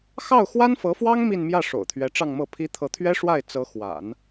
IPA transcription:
xɑ˥˩ʊ̯ xwa˥nfɤ˧˥fwɑ˥ŋ mi˥˧nmjä˥˩ ʂo̰˨˩ʊ̯t̪ʰɥɛ˧˥ʈ͡ʂɑ˥˧ŋmɤ˥˩ pʰi˧˥ t̪ʰɤ˧˥t̪ʰɥɛ˥ʂwa˥˩ɪ̯ t͡sɤ˧˥xwa̰˨˩˦n

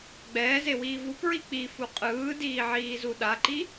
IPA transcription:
ɡ͡bɛːzewiː vupɹi k͡pifu qʼɯːdiːʕiːzu ɗaǃi

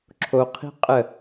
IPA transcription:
ǁʰoqʰi̤ qʼə

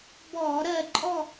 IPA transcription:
bɔː˧˩˧ɾɜ˦˨ ǃʼɔ˦˨

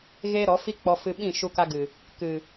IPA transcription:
ɣeː˦ɾɔ˨˦ fi˦k͡pɔ˧ fɨ˧ ɓĩ˦˨ ʃu˧ka˧ɡɨ˨ | kɨ˨

